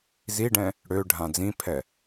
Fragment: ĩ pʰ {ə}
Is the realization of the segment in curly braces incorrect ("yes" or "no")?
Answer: yes